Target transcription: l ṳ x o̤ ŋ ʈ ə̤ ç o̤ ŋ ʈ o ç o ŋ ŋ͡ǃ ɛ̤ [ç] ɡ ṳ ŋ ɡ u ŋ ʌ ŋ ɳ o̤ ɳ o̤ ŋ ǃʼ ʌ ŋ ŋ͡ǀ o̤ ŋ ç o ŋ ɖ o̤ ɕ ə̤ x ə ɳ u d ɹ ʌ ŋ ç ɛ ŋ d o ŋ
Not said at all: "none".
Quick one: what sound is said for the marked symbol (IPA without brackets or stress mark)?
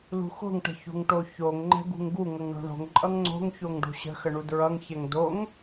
none